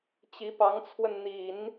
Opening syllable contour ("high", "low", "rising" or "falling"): rising